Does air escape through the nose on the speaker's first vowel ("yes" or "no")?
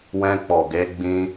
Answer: yes